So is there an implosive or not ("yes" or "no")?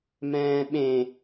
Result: yes